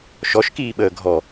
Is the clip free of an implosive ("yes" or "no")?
no